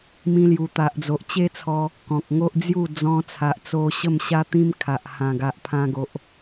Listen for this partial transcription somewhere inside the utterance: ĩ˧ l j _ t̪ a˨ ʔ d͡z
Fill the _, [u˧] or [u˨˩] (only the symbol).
u˨˩